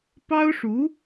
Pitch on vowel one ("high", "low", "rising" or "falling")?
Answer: high